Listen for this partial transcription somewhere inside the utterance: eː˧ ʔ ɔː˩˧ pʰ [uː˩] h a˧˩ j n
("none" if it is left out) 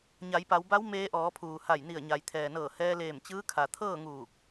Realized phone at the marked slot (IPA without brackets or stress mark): uː˩